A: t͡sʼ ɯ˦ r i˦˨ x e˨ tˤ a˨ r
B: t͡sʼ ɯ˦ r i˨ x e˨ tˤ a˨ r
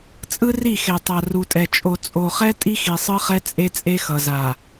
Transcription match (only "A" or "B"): A